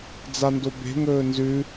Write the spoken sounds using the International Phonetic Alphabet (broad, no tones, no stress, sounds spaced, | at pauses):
d͡z a n d o b e̤ ŋ ɵː n z ʉ